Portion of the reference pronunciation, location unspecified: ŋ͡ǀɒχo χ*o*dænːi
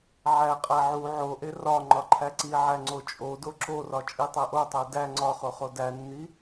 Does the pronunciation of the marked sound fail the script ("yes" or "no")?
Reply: no